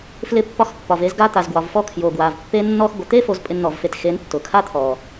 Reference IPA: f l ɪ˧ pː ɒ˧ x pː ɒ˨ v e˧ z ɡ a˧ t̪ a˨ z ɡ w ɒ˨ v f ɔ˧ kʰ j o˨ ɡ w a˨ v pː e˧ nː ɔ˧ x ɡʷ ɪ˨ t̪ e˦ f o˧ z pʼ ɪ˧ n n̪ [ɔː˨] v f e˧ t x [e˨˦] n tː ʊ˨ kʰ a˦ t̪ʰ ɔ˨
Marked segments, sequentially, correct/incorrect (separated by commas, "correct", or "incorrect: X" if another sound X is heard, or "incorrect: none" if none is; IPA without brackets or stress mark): incorrect: ɔ˨, correct